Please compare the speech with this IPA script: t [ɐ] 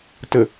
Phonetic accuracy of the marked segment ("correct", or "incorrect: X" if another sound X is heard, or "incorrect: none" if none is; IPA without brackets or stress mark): incorrect: ə